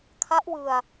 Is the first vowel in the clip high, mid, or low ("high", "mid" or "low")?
low